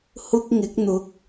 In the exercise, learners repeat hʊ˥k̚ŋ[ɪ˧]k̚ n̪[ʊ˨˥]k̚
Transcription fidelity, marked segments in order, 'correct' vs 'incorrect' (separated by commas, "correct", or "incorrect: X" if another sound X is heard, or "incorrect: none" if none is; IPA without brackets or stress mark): incorrect: ɪ˨˥, correct